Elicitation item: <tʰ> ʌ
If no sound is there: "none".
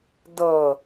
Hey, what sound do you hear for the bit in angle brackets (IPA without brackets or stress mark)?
d